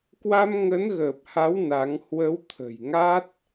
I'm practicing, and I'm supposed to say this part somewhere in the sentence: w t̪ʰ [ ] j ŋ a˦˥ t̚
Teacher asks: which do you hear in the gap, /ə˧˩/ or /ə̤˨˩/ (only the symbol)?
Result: ə̤˨˩